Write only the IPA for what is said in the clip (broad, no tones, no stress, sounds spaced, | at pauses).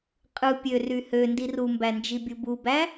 qʼ ɯ pʲ ø r y h ø n d i r u m b æ n d͡ʒ i bʲ u b u b æ